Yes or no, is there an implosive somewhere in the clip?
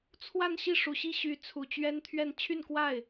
no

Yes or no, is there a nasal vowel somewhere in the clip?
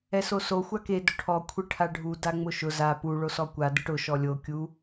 no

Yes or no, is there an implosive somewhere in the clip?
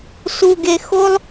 no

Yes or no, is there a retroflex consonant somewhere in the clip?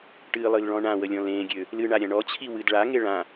yes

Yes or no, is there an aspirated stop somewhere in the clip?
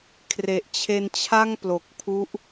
yes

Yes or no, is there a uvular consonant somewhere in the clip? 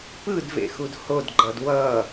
no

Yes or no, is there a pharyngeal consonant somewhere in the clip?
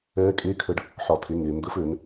yes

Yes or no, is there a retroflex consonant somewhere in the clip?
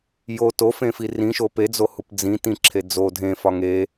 no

